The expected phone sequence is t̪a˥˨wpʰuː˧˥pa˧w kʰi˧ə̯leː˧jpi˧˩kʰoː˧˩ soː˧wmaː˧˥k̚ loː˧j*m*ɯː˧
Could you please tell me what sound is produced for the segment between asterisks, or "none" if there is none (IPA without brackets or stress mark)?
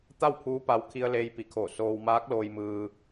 m